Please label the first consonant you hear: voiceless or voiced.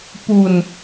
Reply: voiceless